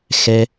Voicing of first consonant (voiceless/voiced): voiceless